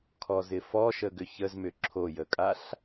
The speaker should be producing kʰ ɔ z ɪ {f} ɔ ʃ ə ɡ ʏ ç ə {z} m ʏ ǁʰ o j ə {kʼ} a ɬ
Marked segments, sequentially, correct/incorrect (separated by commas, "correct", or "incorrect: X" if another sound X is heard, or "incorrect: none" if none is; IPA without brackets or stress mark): correct, correct, correct